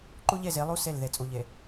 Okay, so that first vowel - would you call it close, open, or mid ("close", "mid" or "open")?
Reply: close